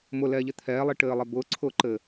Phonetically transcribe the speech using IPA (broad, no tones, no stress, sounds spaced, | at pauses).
m ʊ l ɛː ʎ ɘ t̪ʰ ɛː lˠ i ʈ ɘː lˠ ɛ b ʊː ǀʰ ʊː ǃ ɘː